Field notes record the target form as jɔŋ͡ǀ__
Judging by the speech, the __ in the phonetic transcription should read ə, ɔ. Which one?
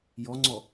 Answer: ɔ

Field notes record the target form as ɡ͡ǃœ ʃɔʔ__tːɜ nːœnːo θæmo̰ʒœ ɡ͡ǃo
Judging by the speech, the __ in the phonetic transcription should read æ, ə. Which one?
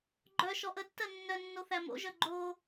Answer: ə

